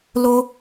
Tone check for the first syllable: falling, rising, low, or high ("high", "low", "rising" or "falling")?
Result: high